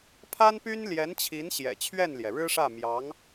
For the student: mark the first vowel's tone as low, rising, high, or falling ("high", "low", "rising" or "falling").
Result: high